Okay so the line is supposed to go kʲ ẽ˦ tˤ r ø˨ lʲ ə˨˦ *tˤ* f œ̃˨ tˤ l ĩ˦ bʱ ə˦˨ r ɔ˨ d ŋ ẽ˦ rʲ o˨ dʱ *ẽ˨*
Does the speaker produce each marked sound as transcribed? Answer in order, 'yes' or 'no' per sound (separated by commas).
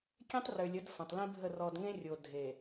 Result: no, no